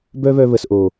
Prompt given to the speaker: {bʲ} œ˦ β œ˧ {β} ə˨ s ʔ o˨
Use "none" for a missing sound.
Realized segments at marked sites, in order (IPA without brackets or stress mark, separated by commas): b, β